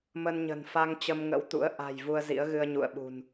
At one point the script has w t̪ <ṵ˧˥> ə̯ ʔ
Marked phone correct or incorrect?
correct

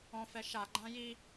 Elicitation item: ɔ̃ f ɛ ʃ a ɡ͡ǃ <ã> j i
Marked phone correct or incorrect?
correct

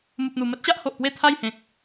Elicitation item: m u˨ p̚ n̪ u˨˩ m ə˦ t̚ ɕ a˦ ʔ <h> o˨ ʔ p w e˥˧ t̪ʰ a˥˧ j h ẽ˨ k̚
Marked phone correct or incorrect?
correct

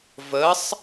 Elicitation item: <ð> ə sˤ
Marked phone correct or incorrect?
incorrect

